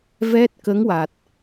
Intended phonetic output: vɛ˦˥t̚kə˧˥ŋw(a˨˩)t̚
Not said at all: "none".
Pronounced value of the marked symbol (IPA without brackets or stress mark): a˨˩